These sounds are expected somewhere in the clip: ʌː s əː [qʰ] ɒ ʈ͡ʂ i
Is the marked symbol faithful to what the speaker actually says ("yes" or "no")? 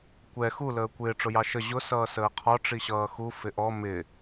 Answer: yes